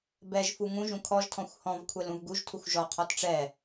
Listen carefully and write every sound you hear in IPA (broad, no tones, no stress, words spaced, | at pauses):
bɛʒfu ŋũʒũ kʰɔʒtʰɔ̃xʷ hɔ̃vkʷʰɛl ũvɡuʒtʰuxʷ ʒɔqʰɔt ʈ͡ʂɛ